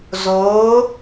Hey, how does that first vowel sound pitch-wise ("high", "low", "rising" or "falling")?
rising